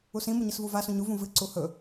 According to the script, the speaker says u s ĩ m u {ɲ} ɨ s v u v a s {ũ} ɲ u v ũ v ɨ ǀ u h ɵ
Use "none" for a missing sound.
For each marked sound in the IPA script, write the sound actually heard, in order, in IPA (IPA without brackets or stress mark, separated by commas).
ɲ, ũ